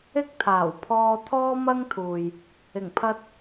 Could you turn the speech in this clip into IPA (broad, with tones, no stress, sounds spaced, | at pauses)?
ɪ˥ k̚ t̪ʰ aː˨˩ w pʰ ɔː˧ t̪ʰ ɔː˥ m ɐ˥ ŋ t̪ʰ uː˨ j | ɪ˨˩ ŋ pʰ ɐ˧ t̚